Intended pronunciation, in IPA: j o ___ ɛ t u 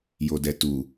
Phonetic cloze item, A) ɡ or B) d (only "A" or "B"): B